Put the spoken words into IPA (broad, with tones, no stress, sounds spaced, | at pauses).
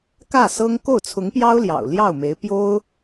k ä˥˩ s ɤ˥ ŋ k o˥˩ ʊ̯ t͡sʰ ʊ˧˥ ŋ p j ɑ˥ ʊ̯ l j ɑ̰˨˩ ʊ̯ l j ɑ˥˩ ʊ̯ m e˧˥ ɪ̯ p j o˥ ʊ̯